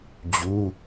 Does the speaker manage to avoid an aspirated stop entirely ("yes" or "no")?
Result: yes